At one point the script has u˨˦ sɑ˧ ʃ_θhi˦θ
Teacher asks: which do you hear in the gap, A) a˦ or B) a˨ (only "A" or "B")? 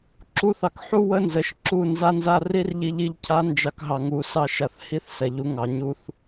B